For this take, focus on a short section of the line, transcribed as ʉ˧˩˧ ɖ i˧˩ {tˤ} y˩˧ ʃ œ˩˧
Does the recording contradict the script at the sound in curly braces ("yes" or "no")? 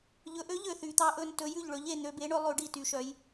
yes